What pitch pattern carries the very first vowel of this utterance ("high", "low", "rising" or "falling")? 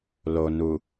low